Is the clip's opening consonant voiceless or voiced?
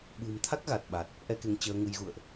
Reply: voiced